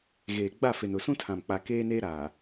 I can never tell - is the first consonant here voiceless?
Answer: no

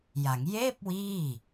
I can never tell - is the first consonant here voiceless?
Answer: no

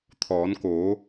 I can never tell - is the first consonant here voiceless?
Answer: yes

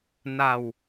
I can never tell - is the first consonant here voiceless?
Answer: no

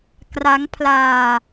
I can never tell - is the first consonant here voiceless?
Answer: yes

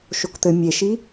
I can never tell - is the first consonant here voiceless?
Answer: yes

